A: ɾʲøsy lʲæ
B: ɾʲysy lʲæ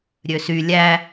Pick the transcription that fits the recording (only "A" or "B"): A